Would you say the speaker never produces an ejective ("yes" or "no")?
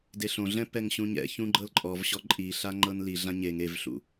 no